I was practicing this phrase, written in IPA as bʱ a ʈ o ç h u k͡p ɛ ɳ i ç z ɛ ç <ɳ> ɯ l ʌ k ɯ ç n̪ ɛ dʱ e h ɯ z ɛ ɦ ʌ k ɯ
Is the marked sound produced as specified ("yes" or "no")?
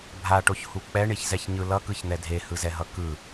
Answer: no